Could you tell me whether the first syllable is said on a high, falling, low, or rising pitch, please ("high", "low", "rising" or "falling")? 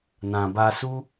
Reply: low